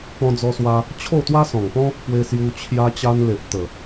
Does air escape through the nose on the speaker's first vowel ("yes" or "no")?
yes